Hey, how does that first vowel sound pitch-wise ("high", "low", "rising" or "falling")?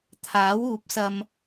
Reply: rising